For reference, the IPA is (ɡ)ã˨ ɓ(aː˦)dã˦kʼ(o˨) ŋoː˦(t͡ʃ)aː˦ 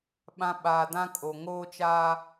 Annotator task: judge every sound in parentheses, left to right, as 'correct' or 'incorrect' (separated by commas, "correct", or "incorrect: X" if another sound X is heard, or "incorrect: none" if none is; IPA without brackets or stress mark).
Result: incorrect: ɓ, incorrect: aː˨, correct, correct